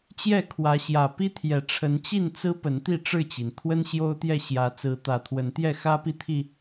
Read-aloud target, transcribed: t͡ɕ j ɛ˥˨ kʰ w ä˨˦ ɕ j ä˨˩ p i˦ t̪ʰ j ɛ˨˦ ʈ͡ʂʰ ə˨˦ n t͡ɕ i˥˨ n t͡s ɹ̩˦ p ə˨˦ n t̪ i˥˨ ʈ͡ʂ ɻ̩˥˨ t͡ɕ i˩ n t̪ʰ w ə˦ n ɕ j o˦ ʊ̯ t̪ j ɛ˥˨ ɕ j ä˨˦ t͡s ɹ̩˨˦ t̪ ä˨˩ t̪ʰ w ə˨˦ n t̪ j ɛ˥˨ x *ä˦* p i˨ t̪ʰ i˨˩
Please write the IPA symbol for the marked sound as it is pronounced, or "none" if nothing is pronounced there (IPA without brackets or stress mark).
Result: ä˦